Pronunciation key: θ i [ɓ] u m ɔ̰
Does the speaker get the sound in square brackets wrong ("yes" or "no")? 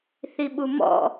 no